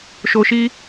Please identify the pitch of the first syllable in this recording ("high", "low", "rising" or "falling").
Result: low